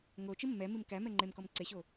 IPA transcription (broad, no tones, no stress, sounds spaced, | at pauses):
ŋ o t͡ʃ i mː ɛ m i m k æ m ɛ ŋ͡ǃ e m k ɔ m ǀ e ɕ o